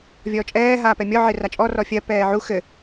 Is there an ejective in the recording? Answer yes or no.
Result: yes